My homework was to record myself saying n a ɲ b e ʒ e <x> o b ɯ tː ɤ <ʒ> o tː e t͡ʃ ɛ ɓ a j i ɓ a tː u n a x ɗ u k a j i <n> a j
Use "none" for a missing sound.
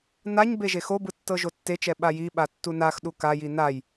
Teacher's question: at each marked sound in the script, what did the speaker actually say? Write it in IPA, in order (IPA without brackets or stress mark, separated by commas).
x, ʒ, n